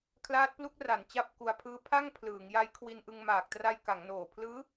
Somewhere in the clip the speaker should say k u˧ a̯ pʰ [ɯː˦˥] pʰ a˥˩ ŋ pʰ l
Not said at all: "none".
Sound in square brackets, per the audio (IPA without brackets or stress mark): ɯː˦˥